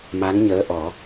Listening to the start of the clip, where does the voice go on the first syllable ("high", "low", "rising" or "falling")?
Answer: rising